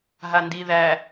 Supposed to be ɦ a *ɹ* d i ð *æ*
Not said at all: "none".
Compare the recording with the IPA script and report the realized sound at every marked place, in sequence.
n, æ

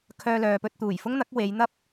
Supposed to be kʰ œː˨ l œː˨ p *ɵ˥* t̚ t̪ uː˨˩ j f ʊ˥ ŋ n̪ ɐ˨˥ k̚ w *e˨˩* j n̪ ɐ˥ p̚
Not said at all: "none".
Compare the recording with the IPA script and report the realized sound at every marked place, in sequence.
ɵ˧, e˨˧

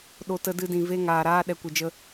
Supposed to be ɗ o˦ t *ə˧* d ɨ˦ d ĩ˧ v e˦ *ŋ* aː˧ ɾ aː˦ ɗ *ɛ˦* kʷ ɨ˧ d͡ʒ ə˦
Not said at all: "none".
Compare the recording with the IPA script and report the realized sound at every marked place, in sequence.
ə˦, ŋ, ɛ˦

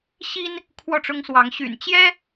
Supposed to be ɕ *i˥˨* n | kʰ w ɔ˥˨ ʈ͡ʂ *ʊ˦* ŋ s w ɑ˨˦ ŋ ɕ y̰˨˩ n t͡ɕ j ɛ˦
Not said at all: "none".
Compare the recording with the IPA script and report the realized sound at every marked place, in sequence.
i˦, ʊ˦

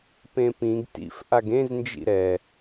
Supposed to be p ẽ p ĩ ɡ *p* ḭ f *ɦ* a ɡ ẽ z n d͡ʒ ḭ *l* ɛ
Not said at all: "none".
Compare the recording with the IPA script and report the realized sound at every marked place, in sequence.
t, ʔ, ɾ

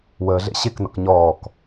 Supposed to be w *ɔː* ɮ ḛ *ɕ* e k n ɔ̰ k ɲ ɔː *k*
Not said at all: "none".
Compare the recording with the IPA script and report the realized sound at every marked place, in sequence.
əː, ɕ, k

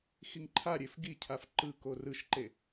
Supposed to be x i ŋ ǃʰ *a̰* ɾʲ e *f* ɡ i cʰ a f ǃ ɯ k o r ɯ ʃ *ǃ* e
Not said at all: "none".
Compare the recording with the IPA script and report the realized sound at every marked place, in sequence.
a, f, ǃ

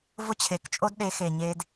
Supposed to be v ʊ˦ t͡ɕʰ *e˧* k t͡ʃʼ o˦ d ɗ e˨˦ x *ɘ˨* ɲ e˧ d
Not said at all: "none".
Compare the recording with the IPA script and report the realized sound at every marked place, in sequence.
e˨, e˨

